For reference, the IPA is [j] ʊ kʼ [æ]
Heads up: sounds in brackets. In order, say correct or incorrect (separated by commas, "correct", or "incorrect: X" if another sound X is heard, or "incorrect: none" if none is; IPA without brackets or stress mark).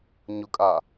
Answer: incorrect: ɲ, incorrect: a